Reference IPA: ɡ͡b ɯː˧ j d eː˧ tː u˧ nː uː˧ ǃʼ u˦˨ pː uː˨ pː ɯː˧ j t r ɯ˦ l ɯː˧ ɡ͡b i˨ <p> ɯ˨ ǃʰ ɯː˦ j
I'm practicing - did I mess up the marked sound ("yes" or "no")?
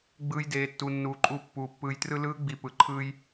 no